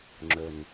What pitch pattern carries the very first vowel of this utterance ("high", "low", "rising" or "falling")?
low